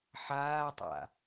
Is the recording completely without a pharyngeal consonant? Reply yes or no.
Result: no